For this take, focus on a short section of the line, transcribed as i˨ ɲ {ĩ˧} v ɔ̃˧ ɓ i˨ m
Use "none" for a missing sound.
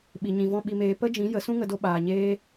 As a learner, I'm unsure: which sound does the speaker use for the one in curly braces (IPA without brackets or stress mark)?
ĩ˨